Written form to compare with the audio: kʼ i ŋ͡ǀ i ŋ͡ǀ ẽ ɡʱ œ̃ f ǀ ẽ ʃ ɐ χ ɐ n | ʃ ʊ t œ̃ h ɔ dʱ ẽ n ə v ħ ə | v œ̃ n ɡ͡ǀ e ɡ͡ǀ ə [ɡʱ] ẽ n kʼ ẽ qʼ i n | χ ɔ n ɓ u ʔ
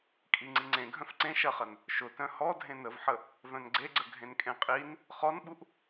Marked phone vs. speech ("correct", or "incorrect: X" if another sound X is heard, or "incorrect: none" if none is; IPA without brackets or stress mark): correct